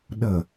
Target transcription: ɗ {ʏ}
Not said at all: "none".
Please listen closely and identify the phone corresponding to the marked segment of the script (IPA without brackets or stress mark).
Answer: ə